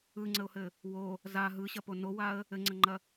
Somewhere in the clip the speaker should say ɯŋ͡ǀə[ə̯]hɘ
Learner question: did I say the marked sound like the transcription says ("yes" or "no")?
no